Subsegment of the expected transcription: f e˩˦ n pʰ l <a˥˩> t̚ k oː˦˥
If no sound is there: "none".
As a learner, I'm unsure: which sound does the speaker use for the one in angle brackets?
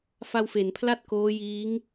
a˥˩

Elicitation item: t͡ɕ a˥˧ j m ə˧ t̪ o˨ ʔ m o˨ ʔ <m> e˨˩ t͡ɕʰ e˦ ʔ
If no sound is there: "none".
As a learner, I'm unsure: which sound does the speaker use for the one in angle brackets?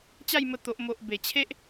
b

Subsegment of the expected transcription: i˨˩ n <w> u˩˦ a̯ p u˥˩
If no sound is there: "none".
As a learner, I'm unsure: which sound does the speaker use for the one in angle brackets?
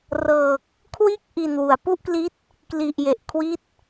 w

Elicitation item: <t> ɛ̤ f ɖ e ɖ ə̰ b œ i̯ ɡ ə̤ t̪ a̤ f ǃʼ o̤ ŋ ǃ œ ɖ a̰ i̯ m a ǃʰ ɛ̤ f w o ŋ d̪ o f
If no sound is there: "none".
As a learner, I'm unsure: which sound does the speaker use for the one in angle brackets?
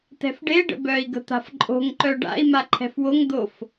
t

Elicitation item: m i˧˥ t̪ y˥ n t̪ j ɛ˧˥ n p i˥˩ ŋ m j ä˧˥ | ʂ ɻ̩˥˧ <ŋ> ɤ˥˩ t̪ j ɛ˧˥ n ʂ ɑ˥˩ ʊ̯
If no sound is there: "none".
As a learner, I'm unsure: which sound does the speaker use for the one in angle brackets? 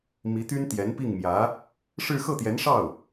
x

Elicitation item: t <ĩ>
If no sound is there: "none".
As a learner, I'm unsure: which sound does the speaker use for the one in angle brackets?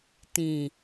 ĩ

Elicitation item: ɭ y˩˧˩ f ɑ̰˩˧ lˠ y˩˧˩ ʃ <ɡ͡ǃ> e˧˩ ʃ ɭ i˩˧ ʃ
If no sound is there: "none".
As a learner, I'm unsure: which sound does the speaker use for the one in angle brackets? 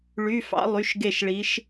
ɡ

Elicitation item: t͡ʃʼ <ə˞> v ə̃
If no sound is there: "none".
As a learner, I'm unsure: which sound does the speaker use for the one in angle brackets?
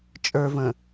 ə˞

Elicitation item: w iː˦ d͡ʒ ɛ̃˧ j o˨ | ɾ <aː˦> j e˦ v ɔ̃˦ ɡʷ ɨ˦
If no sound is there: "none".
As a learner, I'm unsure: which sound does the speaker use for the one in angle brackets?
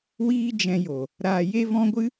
aː˧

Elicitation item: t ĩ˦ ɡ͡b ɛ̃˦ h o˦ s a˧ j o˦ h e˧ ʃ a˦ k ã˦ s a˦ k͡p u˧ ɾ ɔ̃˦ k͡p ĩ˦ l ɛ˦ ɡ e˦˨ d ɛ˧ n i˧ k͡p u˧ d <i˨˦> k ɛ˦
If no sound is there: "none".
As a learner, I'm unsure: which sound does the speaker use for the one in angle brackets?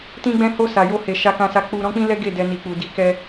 i˦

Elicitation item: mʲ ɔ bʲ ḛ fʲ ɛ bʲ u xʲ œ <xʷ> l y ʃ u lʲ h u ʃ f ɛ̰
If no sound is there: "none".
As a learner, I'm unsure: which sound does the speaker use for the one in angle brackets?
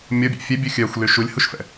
xʷ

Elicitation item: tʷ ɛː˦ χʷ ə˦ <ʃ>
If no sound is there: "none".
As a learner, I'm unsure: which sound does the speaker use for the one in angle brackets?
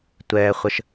ʃ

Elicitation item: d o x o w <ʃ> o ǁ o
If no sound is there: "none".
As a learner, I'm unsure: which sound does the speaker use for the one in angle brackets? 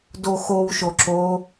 ʃ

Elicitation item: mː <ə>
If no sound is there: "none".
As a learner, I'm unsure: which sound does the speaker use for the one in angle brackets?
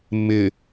ɪ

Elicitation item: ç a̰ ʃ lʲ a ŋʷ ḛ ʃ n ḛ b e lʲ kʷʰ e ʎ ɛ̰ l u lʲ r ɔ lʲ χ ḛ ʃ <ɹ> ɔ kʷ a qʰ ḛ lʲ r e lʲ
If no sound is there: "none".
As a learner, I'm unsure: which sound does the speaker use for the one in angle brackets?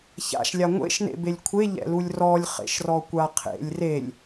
r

